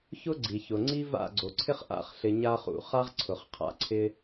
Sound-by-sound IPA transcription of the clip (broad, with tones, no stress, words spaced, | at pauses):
çʊ˦ɡ͡ǀi˨çʊ˨ ŋ͡ǀi˦va̰˦˨ɡ͡ǀo˨ǀʰɪ˦χ ʔa̰˧χɬɪ˨ ɲa˧χṵ˨ χa˦ʁǀʰʊ˨χqʰa̰˦˨ ǀʰɪ˧